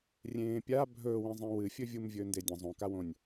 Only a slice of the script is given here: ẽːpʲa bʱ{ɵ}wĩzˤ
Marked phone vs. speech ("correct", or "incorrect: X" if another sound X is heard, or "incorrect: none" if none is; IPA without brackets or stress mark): incorrect: ɵː